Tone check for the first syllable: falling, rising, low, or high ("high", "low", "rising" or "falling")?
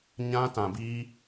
high